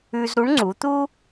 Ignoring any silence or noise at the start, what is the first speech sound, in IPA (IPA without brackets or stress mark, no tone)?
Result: ʉ